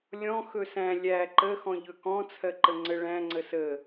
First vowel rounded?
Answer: yes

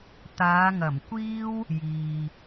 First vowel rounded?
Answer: no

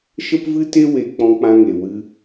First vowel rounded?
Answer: no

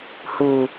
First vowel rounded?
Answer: yes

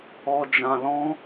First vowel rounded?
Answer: yes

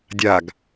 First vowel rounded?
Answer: no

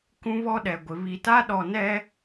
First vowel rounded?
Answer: yes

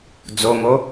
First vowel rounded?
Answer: yes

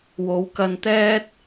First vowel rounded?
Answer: yes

